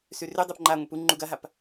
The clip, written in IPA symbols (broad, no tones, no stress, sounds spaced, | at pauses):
s ʉ r ʉ dˤ u p ŋ͡ǃ a ŋʷ i p u ŋ͡ǃ u ɡ ɐ ɦ a p